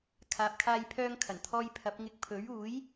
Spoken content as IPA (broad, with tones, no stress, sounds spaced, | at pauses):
kʰ aː˨ p̚ kʰ aː˧ j pʰ œː˧ ŋ kʰ ɐ˨˩ n t̪ʰ ɔː˧ j pʰ ɐ˨˥ p̚ ŋ ɪ˧ k̚ pʰ ɵ˨˥ ɥ uː˨˥ j